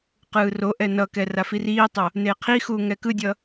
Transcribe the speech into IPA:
q ɯː r o ʔ ɛ n ʌ k ɛ r a f i r iː tˤ o | n eː qʰ i x uː ŋ ɛ k ɯ dʲ ʌ

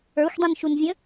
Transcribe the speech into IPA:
ə˞ xʷ dˤ ĩ n ʃ u n vʲ ə̃

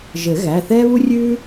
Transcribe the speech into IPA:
ʒ ɘ˨˩˦ ɣ æ˩˧˩ θ ɛː˦ β u˦ rʲ ʉː˦

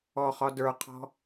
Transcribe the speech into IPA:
ɔ χ ɒ d ə˞ qʰ ɔ̤

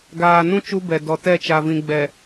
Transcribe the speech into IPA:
ɡ aː˨ n ũ˦ t͡ʃ u˦ b ɛ˨ d ɔ˨ t ɛ˦˨ t͡ʃ a˨ v ĩ˨ ɡ͡b ɛ˨

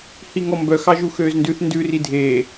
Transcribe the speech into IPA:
h i ŋ ɔ m b œ x ɑ ʒ u x øː z n d ʉ θ n d ʉ r i dʱ eː

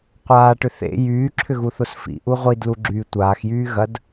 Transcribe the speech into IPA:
qʷ aː ʈ ʏ θ ḛ j yː ǁʰ ʏ ɣ u θ o s f ḭ ʔ u ʁʷ i d l u ɡ͡ǁ yː tʷ aː x j yː ɣ ɐ d

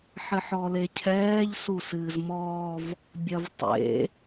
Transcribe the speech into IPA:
ħ ɘ ħ ɔ l e cʰ ɛː ʎ s u s ɨː z m ɔː v | bʲ ɐ v tˤ ḛ

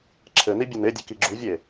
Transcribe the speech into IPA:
ǁʰ ɘ n i bʲ u n e dʲ ɘ k i ɡ͡ǁ u vʲ e

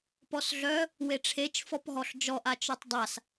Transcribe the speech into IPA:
p ɔ s ɮ œ | w e ʈ͡ʂʰ e t͡ʃ f ɔ p ɦ ɔ ɬ d͡ʒ ɔ ʔ a t͡ʃ œ tˤ dˤ a s

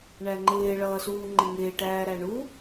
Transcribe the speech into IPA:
ɳ æ ŋ͡ǃ ɪː ɭ ʌː s uː ŋ͡ǃ ɪ ŋ ɪː ʈ æː ɾ æ ɳ u

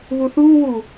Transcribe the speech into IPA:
β u θ uː w u

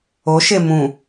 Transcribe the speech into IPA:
o ʃ e m ũ

